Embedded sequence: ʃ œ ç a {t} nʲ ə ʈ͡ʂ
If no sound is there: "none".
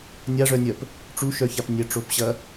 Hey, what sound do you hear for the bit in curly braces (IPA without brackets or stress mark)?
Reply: p